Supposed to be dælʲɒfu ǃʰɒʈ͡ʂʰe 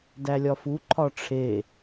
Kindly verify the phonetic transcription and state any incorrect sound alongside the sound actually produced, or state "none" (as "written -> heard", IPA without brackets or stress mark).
none